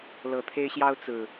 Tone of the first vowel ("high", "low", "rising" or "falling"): low